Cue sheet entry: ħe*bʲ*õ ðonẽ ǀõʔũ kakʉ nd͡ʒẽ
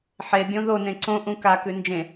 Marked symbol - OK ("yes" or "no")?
yes